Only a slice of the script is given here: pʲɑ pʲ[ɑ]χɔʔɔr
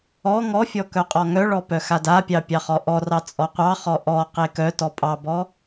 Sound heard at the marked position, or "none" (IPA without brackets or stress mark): ɑ